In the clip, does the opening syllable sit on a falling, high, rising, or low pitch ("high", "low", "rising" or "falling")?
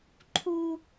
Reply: high